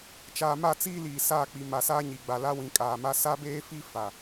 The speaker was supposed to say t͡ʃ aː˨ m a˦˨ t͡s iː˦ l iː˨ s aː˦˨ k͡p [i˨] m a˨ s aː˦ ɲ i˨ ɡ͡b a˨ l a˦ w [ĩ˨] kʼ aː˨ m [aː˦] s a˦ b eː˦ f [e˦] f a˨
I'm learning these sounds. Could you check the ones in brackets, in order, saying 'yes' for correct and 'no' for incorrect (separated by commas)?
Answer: yes, yes, no, no